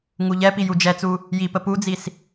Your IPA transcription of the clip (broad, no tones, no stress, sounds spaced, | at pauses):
ŋ u ʎ ɛ p i j u d͡ʒ ɛ t͡s u | j i p ə p u d͡z i s